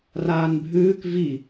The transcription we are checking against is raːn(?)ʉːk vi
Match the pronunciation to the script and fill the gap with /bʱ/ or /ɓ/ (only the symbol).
bʱ